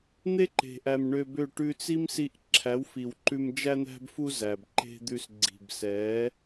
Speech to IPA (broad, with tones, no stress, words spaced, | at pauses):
n̪e˦ǃe̤˨ʔæ˨m ɳø˧bø˦˨ ʈʉ˧t͡si˦msi˧ʔ ǁʰæ˨˦wfi˨wǃʉ˧m d͡ʒæ˧n̪æ̤˧bfu˧ zæ˨bǃe̤˦d̪ʉ˧s ɡ͡ǀi̤˨bsɛ˨˦